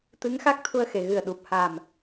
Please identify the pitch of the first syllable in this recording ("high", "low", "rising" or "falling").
rising